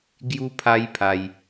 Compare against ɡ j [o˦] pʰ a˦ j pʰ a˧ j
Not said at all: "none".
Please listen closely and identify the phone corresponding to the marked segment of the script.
u˦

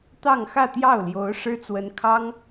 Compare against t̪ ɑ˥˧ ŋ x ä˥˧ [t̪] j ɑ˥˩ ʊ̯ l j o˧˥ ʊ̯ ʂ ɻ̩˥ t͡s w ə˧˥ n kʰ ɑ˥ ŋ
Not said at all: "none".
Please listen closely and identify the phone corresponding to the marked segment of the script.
t̪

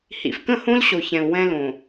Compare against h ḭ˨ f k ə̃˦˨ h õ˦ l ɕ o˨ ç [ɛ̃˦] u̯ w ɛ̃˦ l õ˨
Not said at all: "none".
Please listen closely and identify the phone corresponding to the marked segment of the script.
ɛ̃˨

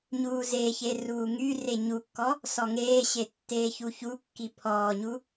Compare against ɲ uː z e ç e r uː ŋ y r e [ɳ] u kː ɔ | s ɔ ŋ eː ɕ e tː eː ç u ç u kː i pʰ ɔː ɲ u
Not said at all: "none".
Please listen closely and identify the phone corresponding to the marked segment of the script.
ɲ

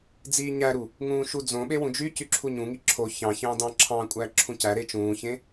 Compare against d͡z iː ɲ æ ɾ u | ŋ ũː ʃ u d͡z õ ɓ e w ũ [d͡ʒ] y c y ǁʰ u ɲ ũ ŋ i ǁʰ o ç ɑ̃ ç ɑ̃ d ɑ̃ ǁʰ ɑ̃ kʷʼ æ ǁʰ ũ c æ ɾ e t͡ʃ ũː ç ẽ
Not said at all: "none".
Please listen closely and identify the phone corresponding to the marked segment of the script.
d͡ʒ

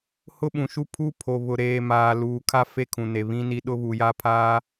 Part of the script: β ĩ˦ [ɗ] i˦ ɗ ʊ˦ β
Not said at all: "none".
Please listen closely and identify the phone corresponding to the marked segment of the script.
n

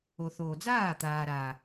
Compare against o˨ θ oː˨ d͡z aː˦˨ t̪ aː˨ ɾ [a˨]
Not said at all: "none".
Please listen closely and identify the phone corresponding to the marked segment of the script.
a˨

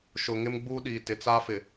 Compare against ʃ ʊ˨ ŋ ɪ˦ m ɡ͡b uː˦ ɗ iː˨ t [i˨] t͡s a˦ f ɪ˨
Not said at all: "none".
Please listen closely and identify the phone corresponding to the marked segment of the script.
ɪ˨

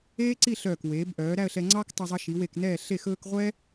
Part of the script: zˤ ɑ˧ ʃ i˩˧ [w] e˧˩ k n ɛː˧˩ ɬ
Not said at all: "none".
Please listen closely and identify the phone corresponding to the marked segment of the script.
w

